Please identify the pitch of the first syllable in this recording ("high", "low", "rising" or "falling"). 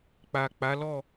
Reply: low